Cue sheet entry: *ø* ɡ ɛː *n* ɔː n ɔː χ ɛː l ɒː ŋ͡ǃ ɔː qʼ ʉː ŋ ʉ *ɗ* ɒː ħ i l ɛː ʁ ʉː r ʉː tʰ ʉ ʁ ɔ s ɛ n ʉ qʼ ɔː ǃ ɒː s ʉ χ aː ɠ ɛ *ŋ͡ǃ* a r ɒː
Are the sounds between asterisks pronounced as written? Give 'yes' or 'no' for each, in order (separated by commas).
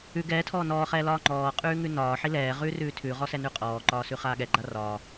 no, no, no, no